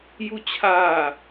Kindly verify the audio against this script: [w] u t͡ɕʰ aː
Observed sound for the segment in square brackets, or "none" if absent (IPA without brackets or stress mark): j